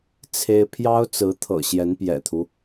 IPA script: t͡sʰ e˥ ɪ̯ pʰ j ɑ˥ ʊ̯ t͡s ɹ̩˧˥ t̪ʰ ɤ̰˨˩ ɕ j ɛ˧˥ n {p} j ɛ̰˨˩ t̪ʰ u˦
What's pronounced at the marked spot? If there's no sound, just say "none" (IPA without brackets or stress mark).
p